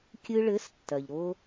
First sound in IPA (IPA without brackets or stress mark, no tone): kʲ